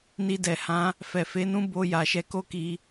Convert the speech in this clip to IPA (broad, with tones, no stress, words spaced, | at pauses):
ni˧dɛ˨hã˨˦ | fɛ˨fe˨˦nũ˦ bo˧ ja˨ʃɛ˨˦ko˦ki˧